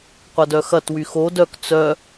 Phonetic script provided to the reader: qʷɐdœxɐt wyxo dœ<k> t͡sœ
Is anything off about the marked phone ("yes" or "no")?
no